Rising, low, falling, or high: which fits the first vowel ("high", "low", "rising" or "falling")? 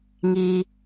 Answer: high